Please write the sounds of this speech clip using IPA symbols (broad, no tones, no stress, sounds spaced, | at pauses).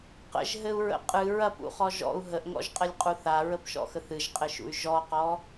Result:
q ə̰ ʒ ɦ ɘ u̯ ɹ ə̰ qʼ ɨ ɹ ɐ p ṵ χ ɔ ʒ ɔ̰ u̯ ɦ ə ʔ ŋ ɔ̰ ʒ qʼ ɘ lʲ qʼ u θ a ɹ ə p ʃ ɔ̰ x ə θ ɨ ʒ qʼ ɘ ʃ ṵ y̯ ʒ ɔ q ɔ